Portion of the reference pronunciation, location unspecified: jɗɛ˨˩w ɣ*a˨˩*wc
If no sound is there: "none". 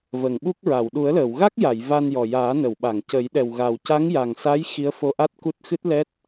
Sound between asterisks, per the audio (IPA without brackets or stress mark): a˨˩